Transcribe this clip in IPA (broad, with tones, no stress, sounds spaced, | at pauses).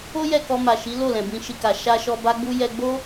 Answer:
o˦ j ɛ˦˨ k ɔ˧ m a˨ ʃ i˨˦ l o˦˨ l ɛ̃˨ b ĩ˧ ʃ i˧ k a˨ ʃ a˧ ʃ ɔ˧ b a˦ ɡ͡b u˦ j ɛ˧ ɡ͡b o˦